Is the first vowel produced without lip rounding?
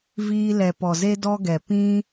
yes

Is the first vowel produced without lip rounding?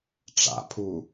yes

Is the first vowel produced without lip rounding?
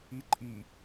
yes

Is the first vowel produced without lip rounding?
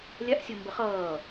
yes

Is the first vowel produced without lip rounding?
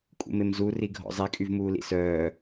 no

